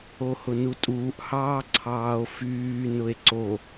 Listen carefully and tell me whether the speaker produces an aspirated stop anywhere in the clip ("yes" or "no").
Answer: yes